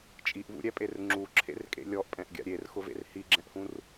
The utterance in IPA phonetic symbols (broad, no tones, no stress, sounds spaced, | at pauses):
t͡ʃʼ i ʔ v ṵ ɾʲ ɛ pʼ e r ŋ͡ǁ u ǁʰ ḛ r kʼ ḛ lʲ ɔ ʔ pʼ ɛ̃ ʔ ɡʲ a̰ ɾʲ e r x ʊ v ḛ r h i ɡ͡ǁ ɛ̃ ʔ h ũ r